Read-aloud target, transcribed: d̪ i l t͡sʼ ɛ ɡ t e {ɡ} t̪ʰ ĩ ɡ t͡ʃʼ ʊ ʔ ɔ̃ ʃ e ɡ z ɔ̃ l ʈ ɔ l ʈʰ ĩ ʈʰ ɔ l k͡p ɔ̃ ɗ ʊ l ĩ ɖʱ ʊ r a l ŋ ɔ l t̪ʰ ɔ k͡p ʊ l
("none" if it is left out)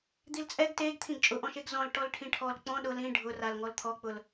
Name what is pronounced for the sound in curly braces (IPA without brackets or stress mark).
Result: ɡ